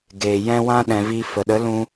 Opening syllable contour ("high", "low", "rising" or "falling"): low